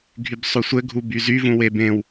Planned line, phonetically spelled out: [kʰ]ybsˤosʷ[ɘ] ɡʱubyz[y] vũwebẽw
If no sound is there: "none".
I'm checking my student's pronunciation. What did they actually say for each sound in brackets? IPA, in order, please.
ɡʱ, ɘ, y

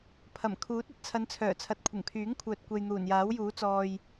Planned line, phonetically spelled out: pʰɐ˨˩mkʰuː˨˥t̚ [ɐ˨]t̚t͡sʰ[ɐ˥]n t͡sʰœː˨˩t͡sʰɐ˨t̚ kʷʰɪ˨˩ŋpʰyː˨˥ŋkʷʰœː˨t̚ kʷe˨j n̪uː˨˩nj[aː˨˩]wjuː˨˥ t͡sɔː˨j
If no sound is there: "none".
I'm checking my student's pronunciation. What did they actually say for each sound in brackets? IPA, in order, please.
ɐ˨, ɐ˨˧, aː˨˥

